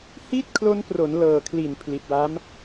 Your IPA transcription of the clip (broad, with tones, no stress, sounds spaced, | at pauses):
h i˥˩ t̚ kʰ l o˦˥ n p r o˩˦ n l ɤː˨˩ kʰ l i˨˩ n pʰ l i˨˩ t̚ w a˦˥ m